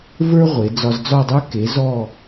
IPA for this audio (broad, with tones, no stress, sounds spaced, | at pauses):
v ə˞˥ ʁʷ e˩˧ d͡z ɒ˧ z d͡z ɒ˥˧ dˤ ə˞˥ k e˩˧ z ɔ˧˩